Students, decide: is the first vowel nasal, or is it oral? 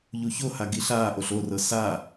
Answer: oral